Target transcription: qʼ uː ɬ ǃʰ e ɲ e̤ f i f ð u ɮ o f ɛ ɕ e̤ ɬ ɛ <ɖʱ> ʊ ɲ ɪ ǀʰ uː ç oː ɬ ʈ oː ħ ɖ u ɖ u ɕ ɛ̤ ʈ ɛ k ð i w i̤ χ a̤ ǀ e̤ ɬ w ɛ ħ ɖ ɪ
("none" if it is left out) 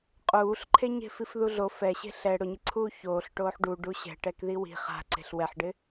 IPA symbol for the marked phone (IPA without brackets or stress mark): ɽ